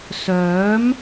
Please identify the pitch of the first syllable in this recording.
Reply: rising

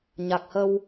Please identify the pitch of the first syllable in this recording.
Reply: low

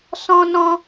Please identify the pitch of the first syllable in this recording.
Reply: high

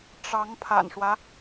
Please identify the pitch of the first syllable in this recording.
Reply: rising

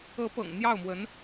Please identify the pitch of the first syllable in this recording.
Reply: rising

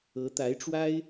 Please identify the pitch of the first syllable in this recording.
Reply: rising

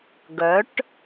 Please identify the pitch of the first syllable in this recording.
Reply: rising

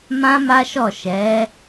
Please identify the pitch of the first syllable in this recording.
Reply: high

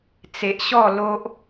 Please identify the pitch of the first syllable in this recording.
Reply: low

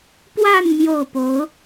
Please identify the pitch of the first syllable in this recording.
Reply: falling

